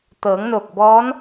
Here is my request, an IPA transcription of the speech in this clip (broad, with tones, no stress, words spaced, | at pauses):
t̪ɤː˩˧ŋno˧˩k̚bɔː˧˥n